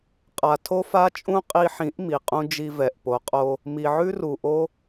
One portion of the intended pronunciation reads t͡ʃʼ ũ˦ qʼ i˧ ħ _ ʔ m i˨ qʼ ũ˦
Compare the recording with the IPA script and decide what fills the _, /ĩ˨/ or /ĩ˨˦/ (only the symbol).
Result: ĩ˨˦